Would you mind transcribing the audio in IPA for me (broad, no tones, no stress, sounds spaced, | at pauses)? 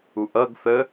u ʔ ʌ ɡ θ ə